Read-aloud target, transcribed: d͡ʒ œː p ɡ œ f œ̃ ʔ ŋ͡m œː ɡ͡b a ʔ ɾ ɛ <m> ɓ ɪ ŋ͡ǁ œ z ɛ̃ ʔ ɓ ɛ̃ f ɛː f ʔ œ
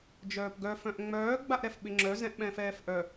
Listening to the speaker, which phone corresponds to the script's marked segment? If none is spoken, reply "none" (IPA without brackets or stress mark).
f